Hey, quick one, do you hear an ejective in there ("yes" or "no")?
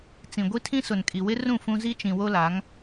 yes